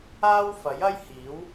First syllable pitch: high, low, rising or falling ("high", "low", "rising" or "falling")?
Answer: high